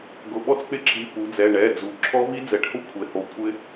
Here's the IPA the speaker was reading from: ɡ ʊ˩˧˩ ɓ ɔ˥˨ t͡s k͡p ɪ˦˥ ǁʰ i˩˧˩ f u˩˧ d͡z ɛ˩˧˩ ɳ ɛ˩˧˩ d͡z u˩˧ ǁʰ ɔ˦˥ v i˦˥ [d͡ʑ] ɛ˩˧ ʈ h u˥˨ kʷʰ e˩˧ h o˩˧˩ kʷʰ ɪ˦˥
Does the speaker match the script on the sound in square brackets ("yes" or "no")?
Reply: no